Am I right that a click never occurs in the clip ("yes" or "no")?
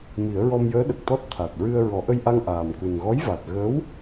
yes